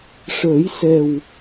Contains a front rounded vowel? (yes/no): no